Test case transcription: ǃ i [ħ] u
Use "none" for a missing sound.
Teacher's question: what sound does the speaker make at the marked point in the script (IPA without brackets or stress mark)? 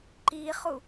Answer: χ